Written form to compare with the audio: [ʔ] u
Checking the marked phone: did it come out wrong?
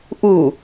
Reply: no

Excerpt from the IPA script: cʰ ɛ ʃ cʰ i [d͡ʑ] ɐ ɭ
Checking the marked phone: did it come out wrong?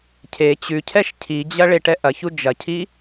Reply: no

